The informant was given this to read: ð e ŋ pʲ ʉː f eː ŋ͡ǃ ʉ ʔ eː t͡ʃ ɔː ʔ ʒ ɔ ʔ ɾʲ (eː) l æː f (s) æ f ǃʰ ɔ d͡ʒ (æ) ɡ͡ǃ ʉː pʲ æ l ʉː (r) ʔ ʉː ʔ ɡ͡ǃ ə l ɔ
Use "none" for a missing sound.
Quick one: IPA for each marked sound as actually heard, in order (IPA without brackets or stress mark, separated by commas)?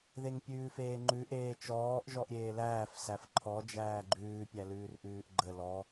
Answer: eː, s, æː, r